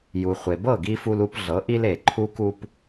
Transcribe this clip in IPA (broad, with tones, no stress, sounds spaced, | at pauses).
j u˩ χʷ e˩ b ɤ˥˩ ɡ i˧ f u˧ l u˧ p ɮ ɤ˩˥ ʔ i˥ l e˩ ǃʰ u˥ k u˥ p